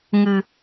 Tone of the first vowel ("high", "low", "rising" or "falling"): low